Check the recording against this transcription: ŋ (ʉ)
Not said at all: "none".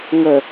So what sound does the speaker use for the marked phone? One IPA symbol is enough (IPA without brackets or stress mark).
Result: ə